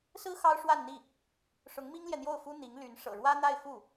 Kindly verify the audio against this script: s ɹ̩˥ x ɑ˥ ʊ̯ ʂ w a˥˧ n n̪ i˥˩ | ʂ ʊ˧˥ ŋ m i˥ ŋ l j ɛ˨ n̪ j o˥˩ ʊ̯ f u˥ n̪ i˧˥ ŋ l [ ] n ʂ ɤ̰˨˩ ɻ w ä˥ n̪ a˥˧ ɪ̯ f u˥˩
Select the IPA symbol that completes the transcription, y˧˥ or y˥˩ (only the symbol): y˧˥